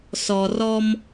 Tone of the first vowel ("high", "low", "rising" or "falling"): low